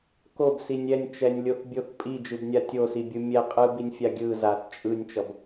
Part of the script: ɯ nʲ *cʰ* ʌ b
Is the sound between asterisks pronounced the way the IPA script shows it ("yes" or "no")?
no